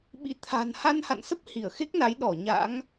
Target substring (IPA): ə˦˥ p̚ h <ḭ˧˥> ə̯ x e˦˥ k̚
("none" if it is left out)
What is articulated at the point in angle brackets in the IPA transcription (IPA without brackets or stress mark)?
i˧˩